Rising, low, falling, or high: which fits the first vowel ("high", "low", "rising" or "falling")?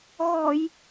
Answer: low